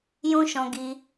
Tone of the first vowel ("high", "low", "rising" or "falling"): high